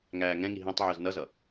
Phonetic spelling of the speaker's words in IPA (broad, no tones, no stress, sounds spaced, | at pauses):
ŋ æː ŋ ɛ̃ ŋ i ɦ ɛ̃ tˤ ʕ ə˞ z n ʌ z ʌ